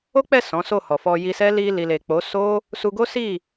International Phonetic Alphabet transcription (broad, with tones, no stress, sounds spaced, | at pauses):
o˦ k͡p ɛ˦˨ s ɔ̃˨˦ s o˦˨ h ɔ˨ f ɔ˧ j i˧ s ɛ˦ l i˧ l i˨ l e˨ k͡p o˨˦ s o˦ | s u˧ ɡ o˦ s i˦˨